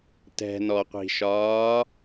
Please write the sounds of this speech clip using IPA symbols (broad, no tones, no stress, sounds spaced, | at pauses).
t ɛ̤ n ɔ qʷ i̤ ʃ ɒː